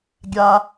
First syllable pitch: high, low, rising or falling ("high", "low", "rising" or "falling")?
high